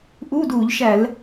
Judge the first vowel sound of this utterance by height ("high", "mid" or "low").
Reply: high